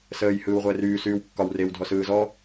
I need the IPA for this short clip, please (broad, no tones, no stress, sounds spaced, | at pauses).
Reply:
s əː j h ɯː w ʁʷ əː r yː s yː w kː ɒ w r e w dʱ ɔ s ɯː z ɔ